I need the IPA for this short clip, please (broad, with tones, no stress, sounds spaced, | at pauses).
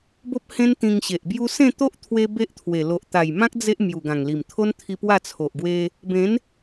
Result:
b o˦ p̚ h ẽ˦ n t̪ ĩ˧ ŋ ɕ e˨ ʔ b j u˦ s ẽ˥˧ t̪ o˦ ʔ t̪ʰ w e˧ b e˦ ʔ t̪ʰ w e˨˩ l o˨ ʔ t̪ a˨˩ j m ã˦ k̚ d͡z e˦ ʔ m j u˨˩ ɡ ã˨˩ ŋ l i˨˩ m t̪ʰ o˦ n t̪ʰ i˧ p w a˥˧ t͡sʰ o˨ ʔ ɡ w e˧ | b ẽ˨˦ n